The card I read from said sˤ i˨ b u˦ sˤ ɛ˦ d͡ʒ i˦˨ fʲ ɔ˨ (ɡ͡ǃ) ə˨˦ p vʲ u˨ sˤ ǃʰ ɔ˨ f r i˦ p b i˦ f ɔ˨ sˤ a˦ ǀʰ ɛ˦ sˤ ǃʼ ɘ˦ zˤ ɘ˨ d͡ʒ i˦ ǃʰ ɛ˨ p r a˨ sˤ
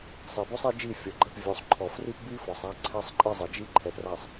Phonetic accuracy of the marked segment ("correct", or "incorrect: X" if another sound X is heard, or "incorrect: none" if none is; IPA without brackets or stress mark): correct